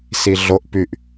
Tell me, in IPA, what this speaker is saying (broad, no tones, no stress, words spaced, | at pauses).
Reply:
siɮoʔ pyʔ